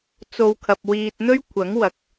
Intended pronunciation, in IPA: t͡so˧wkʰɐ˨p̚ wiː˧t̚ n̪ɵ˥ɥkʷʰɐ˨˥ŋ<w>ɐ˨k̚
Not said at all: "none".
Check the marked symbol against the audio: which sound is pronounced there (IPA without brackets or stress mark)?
w